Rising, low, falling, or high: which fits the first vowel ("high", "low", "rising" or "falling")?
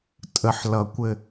low